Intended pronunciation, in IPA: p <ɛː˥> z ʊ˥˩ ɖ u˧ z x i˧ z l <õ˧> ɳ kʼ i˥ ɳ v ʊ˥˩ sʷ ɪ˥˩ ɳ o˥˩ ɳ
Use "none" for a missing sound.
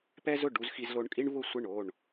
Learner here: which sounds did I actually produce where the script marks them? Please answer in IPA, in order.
ɛ˥, o˧

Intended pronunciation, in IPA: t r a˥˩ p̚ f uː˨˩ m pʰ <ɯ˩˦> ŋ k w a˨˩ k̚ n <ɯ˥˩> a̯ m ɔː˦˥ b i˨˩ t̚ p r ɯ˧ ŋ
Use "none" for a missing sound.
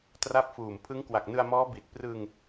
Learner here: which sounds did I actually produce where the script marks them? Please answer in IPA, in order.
ɯ˦˥, ɯ˧

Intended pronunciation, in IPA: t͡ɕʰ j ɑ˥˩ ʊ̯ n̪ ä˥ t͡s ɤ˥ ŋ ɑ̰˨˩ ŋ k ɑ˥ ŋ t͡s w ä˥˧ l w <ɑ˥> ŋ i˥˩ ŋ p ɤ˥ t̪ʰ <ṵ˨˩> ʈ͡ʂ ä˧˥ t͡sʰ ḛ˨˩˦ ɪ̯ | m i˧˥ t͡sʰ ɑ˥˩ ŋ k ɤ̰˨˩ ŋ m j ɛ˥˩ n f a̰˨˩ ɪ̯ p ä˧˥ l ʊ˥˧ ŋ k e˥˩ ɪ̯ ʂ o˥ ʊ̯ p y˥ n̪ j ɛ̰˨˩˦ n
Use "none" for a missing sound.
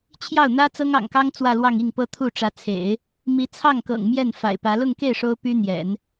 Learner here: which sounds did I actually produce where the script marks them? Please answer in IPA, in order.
ɑ˥˧, u˥˩

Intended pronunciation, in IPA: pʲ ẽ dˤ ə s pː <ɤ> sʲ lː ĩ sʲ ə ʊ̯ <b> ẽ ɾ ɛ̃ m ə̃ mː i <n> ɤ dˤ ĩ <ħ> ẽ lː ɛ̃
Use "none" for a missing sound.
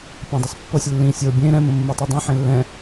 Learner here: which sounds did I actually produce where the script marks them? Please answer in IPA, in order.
ɤ, bʲ, tˤ, ħ

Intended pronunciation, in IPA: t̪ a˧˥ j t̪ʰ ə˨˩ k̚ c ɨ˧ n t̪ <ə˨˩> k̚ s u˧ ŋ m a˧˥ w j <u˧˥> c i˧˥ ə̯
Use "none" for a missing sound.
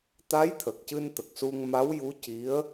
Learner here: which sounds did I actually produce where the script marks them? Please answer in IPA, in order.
ə˨˩, u˧˥

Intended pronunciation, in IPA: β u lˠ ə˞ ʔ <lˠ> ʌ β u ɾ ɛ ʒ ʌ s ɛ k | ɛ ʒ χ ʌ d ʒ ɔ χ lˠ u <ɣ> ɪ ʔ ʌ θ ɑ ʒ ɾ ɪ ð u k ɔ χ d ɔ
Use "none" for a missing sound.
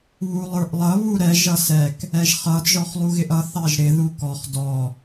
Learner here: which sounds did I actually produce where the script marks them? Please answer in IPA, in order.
lˠ, ɣ

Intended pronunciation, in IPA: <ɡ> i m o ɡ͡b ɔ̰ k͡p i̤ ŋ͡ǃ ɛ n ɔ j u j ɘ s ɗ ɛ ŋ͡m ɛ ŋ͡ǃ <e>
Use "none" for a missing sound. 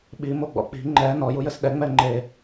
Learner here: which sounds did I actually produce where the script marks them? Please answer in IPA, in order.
ɓ, e

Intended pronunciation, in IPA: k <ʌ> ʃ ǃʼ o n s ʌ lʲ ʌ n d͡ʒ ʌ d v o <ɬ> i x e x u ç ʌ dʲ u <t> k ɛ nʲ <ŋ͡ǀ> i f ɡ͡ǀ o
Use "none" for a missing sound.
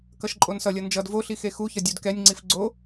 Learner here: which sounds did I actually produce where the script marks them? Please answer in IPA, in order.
ʌ, ɬ, d, ŋ͡ǀ

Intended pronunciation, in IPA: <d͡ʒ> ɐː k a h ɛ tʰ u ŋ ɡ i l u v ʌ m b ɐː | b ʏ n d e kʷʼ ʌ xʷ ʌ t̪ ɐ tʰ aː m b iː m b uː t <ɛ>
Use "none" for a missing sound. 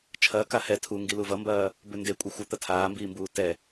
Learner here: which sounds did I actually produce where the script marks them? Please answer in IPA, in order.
t͡ʃʰ, ɛ

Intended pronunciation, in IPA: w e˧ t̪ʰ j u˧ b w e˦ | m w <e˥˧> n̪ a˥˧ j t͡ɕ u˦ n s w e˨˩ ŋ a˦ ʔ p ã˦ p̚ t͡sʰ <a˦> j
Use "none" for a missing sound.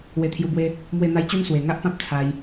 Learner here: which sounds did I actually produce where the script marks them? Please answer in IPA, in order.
e˥˧, a˧

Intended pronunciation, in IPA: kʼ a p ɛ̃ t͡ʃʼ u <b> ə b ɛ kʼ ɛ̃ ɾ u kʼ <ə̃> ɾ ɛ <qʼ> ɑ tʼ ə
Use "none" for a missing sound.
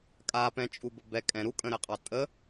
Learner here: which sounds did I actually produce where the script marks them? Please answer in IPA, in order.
b, ə̃, qʼ

